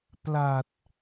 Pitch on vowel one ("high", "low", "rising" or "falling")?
low